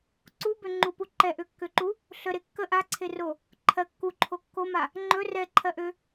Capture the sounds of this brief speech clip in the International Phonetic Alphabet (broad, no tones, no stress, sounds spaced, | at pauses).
ǀ u b ø ŋ͡ǃ u p u ǃ ɛ ʔ ø kː ø ǃ u | ɬ ə ɾ e kː ə ʔ a ǀʰ e r o | ǃʰ ɜ kː u ǃʰ o kː o m a | ŋ͡ǃ ɵ r ɛ ǃʰ ɜ ʔ ø